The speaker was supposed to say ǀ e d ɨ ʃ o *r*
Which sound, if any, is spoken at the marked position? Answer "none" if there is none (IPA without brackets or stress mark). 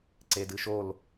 l